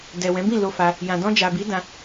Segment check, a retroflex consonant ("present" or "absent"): absent